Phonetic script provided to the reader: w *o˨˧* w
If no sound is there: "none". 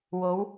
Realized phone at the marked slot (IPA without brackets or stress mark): o˨˧